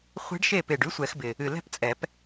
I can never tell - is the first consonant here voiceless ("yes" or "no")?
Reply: yes